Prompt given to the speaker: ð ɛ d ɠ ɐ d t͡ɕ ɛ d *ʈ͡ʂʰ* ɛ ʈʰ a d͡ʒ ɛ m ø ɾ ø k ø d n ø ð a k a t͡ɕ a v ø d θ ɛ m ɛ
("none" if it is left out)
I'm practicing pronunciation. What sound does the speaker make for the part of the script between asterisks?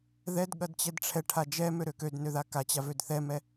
ʈ͡ʂʰ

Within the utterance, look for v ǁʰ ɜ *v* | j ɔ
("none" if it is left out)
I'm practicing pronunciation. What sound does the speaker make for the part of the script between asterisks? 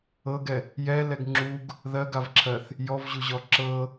θ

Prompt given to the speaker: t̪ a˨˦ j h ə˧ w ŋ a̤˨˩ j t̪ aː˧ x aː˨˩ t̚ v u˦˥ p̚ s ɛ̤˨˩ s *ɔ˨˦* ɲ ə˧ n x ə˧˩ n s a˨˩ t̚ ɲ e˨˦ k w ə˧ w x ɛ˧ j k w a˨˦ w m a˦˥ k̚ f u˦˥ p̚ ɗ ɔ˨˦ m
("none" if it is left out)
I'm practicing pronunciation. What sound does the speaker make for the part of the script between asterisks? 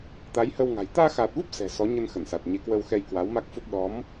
ɔ˨˦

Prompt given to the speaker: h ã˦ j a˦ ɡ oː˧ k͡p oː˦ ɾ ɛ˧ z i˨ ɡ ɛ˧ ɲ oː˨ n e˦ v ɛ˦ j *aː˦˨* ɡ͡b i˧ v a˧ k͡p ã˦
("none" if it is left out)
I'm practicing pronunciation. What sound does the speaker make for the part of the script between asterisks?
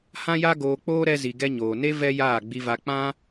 aː˦˨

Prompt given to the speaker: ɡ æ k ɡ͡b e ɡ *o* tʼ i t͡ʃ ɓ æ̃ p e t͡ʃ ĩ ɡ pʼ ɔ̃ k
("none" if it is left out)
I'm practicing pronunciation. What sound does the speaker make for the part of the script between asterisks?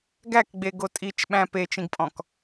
o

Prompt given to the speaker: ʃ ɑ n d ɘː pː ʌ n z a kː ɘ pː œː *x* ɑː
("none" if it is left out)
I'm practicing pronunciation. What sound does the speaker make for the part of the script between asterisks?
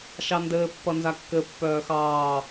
x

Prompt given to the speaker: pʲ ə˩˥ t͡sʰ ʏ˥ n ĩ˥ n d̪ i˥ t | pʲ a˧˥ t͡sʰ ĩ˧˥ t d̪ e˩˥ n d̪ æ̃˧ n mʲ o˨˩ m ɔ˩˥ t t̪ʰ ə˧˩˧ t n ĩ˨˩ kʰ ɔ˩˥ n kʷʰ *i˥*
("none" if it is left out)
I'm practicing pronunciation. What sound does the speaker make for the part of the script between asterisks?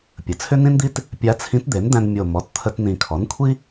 i˥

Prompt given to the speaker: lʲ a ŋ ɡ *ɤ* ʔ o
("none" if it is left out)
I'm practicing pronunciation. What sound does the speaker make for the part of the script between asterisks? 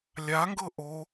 ɤ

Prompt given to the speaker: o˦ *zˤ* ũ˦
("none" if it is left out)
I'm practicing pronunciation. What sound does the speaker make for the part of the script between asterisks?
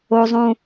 zˤ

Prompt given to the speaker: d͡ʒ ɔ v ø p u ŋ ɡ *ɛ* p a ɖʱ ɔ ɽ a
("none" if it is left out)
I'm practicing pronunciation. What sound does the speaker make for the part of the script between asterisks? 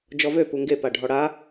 e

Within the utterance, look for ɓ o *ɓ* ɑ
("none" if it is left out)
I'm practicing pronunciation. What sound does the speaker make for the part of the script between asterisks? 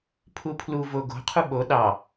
ɗ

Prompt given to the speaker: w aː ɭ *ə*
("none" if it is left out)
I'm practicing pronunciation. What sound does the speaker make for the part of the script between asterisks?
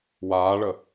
ə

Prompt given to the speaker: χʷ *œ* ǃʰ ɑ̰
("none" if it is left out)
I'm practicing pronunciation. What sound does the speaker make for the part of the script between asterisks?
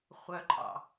œ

